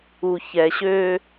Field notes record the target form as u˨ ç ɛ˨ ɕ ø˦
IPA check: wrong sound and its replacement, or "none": none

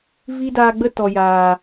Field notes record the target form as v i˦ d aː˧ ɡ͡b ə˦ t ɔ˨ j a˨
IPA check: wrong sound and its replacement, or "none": a˨ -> aː˨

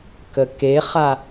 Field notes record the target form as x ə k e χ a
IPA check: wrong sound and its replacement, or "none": x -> k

